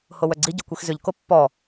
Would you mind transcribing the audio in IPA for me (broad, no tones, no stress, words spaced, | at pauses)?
howœɡ͡ǀi ɟœkʷixzʏʎ kopːɔ